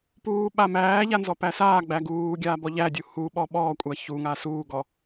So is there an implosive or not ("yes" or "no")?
yes